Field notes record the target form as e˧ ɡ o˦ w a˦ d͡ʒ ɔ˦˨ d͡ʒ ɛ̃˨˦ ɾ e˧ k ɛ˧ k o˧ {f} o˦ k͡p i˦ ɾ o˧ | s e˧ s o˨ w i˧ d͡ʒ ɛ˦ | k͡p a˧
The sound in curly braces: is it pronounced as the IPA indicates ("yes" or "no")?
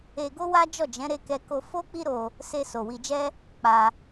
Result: yes